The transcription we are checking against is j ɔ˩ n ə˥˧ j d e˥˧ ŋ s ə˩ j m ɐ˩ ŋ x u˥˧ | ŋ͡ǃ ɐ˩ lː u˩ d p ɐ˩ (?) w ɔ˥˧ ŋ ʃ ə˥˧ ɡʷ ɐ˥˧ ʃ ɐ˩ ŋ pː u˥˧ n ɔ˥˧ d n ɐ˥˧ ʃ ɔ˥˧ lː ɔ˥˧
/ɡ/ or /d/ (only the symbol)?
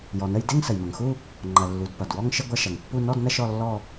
d